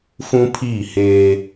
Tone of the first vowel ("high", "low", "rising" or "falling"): high